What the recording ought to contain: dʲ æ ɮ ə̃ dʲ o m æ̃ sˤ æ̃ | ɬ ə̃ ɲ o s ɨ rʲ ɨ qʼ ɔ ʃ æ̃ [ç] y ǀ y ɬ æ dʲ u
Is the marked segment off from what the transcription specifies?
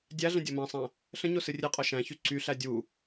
no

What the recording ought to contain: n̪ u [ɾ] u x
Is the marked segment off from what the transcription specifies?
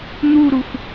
no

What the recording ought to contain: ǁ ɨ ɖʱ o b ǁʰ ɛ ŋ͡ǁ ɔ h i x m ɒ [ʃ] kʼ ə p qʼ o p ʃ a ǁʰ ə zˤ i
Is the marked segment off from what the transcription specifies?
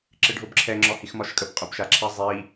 no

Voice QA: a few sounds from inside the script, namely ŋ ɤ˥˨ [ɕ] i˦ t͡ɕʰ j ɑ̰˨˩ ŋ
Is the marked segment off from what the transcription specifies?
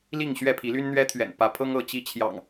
yes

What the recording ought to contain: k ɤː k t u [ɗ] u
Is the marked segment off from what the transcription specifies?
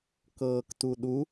no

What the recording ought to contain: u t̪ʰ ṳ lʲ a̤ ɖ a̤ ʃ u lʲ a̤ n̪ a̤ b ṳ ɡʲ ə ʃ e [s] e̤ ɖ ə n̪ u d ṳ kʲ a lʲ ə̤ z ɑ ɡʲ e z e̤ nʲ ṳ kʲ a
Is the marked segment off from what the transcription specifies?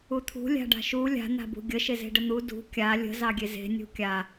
yes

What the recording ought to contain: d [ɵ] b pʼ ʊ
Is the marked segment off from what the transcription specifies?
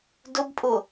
yes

